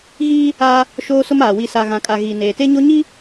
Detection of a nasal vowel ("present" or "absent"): present